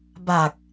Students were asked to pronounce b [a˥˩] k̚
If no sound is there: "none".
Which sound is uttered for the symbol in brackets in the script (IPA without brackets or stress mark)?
a˨˩